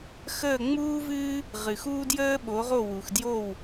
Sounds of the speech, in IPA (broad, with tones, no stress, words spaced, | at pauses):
xəː˥˩ ŋ͡muː˥vɨː˥ | ʁɨ˩xuː˥ djəː˥ɓo˩˥ʁo˥˩ wu˩xdjo˥˩w